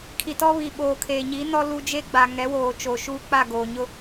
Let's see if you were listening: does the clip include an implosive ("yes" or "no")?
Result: yes